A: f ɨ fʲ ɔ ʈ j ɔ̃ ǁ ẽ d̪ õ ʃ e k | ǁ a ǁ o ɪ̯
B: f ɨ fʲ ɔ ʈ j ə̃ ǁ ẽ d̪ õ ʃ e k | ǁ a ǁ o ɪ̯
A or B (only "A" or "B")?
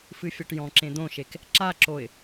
A